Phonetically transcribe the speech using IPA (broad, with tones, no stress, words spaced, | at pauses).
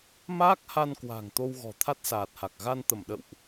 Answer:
maː˦˥k̚ha˧nkwa̤˨˩ŋ t̪o˧wɣɔ̤˨˩ t̪ʰa˦˥t̚saː˨˩t̚ha˨˩k̚ ɣa˧nt̪ə˧˩m ɗə̰˧˨wʔ